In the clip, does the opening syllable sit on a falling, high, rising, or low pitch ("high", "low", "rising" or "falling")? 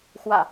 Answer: low